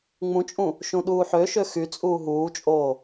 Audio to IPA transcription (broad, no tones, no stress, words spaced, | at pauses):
ŋ͡mũt͡ʃʼũ | ʃũɗuːħøʃø xyt͡sʼuː ɦuːt͡ʃʼoː